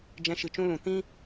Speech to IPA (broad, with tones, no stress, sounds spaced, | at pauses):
d͡ʒ ɛ̃˧ ʃ ɨ˨ t͡ʃ ũ˦ l ũ˨ t ĩ˦